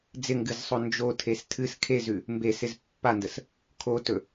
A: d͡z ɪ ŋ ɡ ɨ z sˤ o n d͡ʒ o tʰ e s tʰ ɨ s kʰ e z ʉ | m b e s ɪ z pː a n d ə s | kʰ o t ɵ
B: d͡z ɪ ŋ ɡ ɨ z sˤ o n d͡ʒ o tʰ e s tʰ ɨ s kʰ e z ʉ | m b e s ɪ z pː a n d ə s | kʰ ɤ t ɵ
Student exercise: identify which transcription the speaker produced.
A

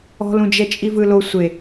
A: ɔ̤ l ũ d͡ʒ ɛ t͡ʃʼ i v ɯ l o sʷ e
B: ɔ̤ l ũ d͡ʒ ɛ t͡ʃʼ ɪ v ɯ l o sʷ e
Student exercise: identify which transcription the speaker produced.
A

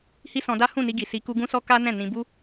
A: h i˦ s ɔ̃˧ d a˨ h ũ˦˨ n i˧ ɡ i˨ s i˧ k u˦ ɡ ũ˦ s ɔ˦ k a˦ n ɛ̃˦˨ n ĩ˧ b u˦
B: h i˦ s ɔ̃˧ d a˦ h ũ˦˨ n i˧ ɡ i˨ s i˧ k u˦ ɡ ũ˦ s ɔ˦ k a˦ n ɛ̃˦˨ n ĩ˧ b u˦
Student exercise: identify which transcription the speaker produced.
B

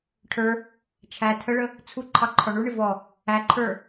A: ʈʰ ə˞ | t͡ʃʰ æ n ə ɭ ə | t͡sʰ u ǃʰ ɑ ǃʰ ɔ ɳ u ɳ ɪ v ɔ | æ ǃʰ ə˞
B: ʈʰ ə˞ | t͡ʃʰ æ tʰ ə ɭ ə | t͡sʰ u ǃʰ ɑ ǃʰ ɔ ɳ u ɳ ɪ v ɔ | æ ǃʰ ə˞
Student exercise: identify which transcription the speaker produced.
B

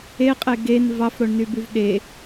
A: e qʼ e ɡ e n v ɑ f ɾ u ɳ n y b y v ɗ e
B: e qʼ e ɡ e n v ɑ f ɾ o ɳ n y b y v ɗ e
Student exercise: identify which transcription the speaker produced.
B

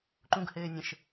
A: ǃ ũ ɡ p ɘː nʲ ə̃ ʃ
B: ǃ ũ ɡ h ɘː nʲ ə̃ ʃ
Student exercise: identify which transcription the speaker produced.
B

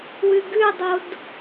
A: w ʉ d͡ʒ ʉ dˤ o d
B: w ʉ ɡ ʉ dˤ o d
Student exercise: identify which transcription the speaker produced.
B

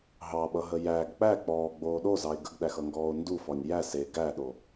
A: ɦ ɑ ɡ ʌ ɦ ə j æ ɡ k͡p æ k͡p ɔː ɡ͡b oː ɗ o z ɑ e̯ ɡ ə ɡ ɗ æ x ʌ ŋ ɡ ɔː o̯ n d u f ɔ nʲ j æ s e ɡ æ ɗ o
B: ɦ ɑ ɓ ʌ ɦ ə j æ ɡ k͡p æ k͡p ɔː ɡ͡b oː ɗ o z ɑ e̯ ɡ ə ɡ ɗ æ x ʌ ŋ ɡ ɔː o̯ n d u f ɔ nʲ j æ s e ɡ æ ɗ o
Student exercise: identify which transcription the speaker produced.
B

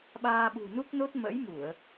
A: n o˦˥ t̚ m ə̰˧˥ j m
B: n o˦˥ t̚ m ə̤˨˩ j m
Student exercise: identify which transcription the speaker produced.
A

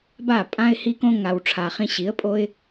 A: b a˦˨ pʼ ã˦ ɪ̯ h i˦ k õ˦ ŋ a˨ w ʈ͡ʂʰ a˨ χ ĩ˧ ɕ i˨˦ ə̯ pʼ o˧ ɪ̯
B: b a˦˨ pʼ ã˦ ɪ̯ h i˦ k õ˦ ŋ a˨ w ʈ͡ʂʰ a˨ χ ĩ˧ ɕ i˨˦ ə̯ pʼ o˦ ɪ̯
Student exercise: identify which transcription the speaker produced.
B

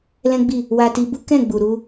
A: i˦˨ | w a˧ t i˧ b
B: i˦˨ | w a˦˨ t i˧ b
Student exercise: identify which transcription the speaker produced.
A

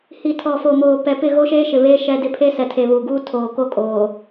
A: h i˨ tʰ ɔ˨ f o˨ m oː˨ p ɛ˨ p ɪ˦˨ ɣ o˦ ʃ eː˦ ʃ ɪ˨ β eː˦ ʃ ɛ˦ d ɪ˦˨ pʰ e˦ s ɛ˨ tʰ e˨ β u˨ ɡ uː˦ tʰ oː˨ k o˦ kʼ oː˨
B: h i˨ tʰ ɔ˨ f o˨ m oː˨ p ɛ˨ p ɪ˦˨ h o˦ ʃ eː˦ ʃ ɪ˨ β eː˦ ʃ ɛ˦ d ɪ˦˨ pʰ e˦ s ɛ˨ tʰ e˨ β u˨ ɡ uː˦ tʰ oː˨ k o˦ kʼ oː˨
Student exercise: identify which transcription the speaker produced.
A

